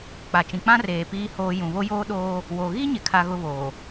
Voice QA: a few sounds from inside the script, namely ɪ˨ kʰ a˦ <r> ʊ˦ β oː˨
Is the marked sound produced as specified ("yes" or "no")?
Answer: no